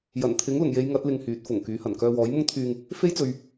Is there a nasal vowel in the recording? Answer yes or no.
no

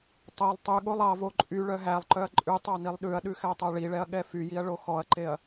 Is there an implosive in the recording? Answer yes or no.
yes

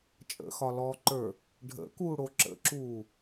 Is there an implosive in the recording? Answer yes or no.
no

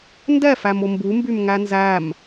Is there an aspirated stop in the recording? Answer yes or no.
no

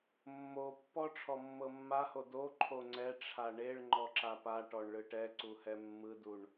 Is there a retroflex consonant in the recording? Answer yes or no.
yes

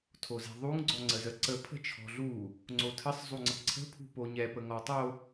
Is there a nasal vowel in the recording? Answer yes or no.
no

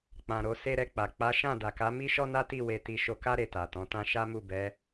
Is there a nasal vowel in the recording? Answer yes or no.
yes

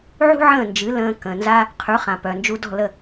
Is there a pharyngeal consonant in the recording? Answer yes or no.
yes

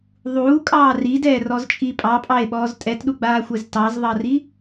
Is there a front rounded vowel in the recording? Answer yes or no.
no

